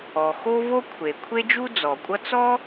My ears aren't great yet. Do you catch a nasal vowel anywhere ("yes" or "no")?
no